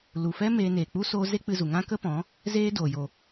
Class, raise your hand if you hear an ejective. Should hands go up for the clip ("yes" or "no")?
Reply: no